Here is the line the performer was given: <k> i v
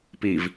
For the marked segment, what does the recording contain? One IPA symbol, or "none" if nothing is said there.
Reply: p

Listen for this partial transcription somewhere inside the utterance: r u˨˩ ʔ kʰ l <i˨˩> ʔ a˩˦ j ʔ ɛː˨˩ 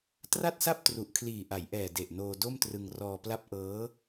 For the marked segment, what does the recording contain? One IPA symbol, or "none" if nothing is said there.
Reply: iː˨˩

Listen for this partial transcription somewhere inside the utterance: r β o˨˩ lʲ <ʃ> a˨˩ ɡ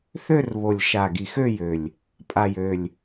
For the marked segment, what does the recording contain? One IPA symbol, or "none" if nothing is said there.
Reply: ʃ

